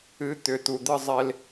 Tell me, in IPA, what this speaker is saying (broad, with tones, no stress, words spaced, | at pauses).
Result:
ɨ˨˦t̪ʏ˨ t̪u˨d̪ɨ˧zˤe˧l